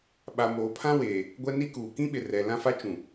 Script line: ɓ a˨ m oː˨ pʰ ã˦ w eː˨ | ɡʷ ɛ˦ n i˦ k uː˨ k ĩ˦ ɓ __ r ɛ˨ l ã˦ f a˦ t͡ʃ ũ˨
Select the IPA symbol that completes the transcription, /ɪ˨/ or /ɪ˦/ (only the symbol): ɪ˨